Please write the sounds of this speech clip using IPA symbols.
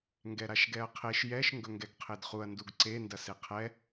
ŋɡɛɾaʃɡɛɐ̯qʰeʃ jɛʃ ŋɡɵŋɡɛɡqʰedχuɐ̯ nduɡǀe ndɐseqʰɛ

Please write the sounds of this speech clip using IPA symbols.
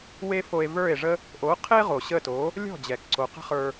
we˧ fo˧e̯və˞˦˨e̯ʐə˦ | ʔo˨˦qʰe˦ ʁo˨ɕə˦˨to˨˦ | lʲɔ̤˦˨d͡ʑɛ˨k ǀo˨qə̤˦χə˞˧

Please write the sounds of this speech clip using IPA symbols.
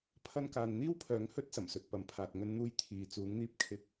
pʰɐ˧nkaː˨nn̪iː˥wpʰœː˨˧ŋ hɵ˥t̚sɐ˨˩msɵ˨t̚ pɐ˨mpʰaː˨t̚ ŋɵ˧nn̪uː˧j t̪ʰiː˨ t͡suː˨˧ŋn̪iː˧p̚kʰɪ˧k̚

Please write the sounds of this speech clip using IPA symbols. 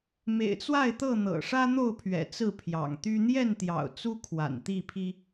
mḛ˨˩ɪ̯t͡swa˥˨ɪ̯t̪ɤ˥˨ n̪ɤ̰˨˩ʂä˦ n̪o˥˨ʊ̯pʰɥɛ̰˨˩ t͡sɹ̩˥˨pʰjɑ̰˨˩ŋt̪y˦ n̪jɛ˥˨nt̪jɑ̰˨˩ʊ̯ t͡su˦kʰwa̰˨˩n t̪i˥˨pʰi˦

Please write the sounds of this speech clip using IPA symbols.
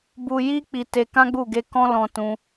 bu˧ji˦ k͡pi˧te˧kã˦ɡ͡bu˦˨ ɡe˧kɔ̃˦lɔ̃˧tũ˧

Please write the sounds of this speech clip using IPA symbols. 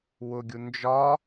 wʊɡʲu nd͡ʒɒ

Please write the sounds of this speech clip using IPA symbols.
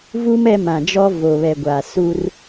vu˦m ɛ˦mã˨ d͡ʒɔ˦vo˨βɛ˨ɡʷa˨ su˦r

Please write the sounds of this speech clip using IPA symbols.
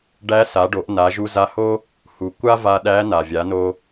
ɖæ˧˥sa˩˧ɖo˩˧ʔ na˩˧ʒu˧za˧ho˥ | hu˩ kʷa˥va˧ ɗæ˧˥ na˩vʲa˩˧no˧

